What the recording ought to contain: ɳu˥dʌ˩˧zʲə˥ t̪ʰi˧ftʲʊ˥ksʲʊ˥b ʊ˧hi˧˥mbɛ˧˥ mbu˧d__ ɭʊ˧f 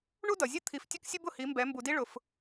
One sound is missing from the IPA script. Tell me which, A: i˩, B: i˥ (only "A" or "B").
B